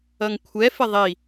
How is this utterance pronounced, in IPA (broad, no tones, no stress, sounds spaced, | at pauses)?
ʌ ŋ kʷʰ ɛ f ɪ ðˤ i